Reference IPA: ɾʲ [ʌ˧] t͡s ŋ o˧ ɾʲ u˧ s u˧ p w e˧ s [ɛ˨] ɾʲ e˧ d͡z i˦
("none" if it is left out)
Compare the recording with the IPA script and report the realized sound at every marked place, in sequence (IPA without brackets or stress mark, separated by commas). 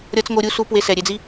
ʌ˧, ɛ˨